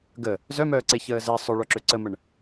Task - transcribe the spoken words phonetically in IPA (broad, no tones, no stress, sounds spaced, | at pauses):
ɡ ə | z œ m œː ǀ e ç əː z ɛ sˤ œ ɭ œ ǁ ø ǀ ə m ə ɳ